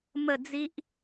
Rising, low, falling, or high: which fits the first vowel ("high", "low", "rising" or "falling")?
falling